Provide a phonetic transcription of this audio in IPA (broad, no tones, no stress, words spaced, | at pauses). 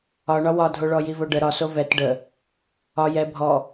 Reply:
ɒɳɒ wɒdʱoɭɔ jivoɖə ɾɒso vɛt ɖə | ɒ jɛ bʱɔ